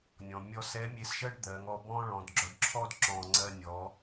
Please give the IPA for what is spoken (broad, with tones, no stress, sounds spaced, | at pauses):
nʲ ɔ̃˩ mʲ ɔ˧ s ɛ˧˥ mʲ e˧ s ʃ ɜ˥ ɖ d̪ ɜ˩˧ ŋ ɔ˧ b ɔ̃˥ ɭ ɔ̃˩˧ d ɡ͡ǁ ɔ˧ ɖ ǁʰ ɔ˥ d ǁ ɔ̃˧ ŋ͡ǀ ɜ˧ nʲ ɔ˩˧